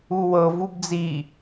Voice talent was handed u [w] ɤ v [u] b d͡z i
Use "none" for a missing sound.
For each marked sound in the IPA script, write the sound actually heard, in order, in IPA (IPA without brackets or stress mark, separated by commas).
w, u